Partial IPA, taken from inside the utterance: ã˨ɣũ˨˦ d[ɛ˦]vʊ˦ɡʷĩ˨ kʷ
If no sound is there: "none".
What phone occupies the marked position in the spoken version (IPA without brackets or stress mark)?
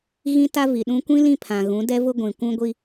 ɛ˦